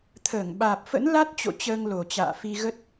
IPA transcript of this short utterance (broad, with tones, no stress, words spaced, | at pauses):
t̪ʰəː˧˩ŋɓaː˨˩p̚fə̰˧˥n la˦˥t̚t͡ɕo̰˧˨ t͡ɕəː˧ŋlo˨˩t͡ɕa̰ː˧˨ fi˧ɣə˦˥t̚